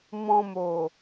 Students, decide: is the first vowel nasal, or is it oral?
nasal